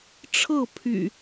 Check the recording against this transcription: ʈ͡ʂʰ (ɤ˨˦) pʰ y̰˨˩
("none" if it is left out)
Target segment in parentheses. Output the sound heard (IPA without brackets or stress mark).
ɤ˥˨